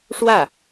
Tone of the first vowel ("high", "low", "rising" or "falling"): falling